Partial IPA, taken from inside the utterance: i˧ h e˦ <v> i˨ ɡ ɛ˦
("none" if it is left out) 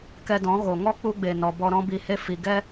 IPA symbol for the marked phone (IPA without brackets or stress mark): f